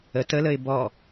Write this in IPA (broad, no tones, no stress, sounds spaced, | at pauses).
ə t ə l ə ɪ̯ b ɔ